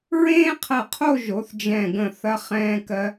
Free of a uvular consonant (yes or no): no